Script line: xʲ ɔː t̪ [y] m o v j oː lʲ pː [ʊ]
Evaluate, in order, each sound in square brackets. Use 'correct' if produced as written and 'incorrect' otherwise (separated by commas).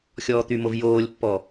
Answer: correct, incorrect